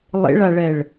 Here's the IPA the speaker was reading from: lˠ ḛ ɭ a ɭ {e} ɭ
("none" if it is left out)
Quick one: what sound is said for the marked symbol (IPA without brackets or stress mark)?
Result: ɛ